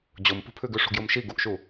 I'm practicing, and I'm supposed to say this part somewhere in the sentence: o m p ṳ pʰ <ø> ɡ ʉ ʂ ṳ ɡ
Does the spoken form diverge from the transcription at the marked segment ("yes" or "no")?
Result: yes